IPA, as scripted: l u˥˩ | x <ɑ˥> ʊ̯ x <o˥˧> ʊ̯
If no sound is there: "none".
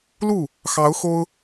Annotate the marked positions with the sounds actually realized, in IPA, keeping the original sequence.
ɑ˧˥, o˥

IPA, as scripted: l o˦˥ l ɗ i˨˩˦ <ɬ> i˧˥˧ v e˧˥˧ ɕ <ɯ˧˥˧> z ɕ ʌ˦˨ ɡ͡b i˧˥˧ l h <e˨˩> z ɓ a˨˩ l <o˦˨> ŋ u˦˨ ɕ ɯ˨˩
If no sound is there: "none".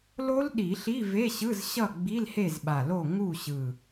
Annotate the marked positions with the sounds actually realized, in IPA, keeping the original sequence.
ɬ, ɯ˧˥˧, e˦˨, o˦˨

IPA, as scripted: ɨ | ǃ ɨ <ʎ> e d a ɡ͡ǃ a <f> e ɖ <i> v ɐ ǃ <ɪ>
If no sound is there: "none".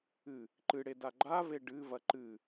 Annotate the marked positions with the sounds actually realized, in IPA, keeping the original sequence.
ɽ, v, ɨ, ɨ

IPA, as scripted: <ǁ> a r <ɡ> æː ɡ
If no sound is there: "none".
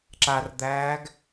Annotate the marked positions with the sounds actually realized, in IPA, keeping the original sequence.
ǁ, d̪

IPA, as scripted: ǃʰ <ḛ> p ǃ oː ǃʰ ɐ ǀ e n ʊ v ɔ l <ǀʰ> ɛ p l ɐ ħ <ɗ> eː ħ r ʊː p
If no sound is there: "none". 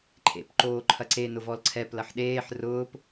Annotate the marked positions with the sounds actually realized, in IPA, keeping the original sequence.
ḛ, ǀʰ, ɗ

